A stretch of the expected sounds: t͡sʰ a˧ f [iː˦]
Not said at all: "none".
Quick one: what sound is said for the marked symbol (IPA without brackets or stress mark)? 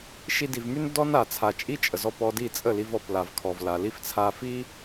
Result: i˦